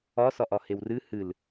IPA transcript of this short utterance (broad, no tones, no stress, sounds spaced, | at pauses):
ɒ s ɒ ʔ ɒ h e w r ɨ h ɨ l